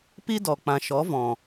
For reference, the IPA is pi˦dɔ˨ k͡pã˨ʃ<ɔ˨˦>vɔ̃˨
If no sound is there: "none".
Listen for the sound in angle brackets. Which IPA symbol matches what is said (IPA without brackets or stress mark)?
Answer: ɔ˨˦